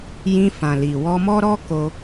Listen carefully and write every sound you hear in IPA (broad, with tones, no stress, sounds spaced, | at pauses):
j ĩ˧ f ã˨ l i˨ w ɔ˧ m ɔ˦ ɾ ɔ˦ k o˧